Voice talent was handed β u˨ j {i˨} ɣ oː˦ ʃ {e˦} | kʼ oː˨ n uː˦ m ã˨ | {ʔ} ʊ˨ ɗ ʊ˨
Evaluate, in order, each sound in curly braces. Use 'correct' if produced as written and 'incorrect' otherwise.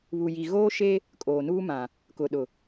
correct, correct, incorrect: k

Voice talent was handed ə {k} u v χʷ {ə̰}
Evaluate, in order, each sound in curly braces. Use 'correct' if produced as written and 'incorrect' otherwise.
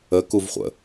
correct, correct

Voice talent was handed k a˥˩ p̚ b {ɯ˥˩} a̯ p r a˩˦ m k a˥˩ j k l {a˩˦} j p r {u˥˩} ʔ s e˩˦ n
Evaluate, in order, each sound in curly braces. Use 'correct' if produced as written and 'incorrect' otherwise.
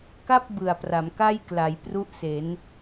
incorrect: ɯ˨˩, correct, correct

